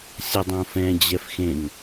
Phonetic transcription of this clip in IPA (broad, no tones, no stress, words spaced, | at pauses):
sʲʌdˤõfɛ̃ d͡ʑɛfxẽŋ